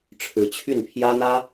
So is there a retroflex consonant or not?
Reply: yes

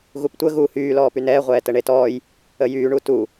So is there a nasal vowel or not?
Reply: no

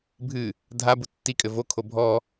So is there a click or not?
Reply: no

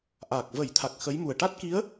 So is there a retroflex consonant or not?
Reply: yes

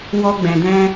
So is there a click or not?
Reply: no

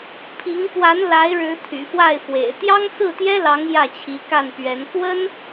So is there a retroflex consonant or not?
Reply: yes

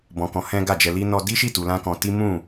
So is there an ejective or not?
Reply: no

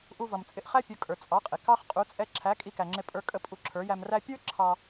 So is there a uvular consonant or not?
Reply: yes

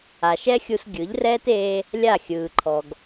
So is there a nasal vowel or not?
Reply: no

